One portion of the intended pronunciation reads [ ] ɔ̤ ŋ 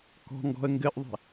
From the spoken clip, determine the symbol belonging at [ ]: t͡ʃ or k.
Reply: k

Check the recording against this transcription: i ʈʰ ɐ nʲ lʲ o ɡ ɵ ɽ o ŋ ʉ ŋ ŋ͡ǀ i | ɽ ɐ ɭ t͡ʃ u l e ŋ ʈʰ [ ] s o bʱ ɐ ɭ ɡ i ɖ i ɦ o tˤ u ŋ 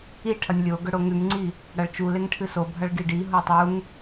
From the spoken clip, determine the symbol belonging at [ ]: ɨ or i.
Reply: ɨ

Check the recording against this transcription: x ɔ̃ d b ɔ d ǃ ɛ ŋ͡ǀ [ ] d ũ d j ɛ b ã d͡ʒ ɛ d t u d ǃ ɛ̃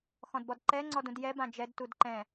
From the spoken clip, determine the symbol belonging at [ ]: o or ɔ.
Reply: ɔ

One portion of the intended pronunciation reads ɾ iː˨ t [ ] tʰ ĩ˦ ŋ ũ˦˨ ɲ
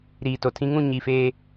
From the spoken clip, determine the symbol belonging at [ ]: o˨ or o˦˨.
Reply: o˨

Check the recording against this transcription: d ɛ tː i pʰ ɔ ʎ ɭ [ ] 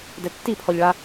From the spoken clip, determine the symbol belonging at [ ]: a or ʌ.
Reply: a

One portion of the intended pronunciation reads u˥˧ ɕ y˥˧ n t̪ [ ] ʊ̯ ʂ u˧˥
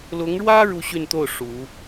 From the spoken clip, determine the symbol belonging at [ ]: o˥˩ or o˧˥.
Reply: o˥˩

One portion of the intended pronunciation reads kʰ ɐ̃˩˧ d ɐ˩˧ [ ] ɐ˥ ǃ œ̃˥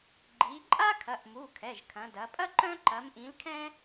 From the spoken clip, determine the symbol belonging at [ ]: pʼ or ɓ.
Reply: pʼ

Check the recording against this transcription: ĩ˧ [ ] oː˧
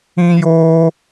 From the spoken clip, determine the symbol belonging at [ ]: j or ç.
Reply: j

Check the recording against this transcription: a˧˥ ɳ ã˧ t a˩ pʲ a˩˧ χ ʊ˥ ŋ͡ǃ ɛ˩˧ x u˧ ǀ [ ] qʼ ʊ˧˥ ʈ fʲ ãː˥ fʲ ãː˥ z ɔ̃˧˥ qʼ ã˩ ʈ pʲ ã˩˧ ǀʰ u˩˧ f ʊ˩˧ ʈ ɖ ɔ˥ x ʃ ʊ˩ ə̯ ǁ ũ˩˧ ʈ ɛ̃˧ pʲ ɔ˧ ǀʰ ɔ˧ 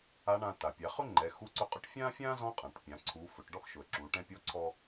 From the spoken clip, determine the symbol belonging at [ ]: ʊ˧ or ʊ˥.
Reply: ʊ˧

